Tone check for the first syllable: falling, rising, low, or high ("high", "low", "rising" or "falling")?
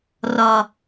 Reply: low